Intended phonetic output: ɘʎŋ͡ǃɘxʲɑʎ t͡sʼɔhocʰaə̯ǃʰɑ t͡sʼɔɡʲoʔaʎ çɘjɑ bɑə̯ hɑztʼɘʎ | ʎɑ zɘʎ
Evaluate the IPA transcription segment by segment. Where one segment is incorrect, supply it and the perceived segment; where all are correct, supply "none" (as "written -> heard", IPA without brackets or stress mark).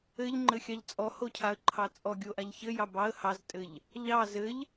none